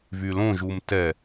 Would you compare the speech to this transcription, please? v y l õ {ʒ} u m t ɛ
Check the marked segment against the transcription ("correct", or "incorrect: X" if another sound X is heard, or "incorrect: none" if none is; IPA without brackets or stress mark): correct